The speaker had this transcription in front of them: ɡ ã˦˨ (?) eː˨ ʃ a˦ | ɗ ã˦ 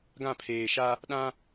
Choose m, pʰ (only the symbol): pʰ